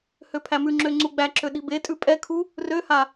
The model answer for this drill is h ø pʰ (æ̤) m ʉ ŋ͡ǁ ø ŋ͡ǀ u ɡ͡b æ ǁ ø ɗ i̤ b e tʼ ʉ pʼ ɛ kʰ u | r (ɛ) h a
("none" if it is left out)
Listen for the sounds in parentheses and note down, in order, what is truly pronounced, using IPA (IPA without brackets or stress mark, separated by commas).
æ, ø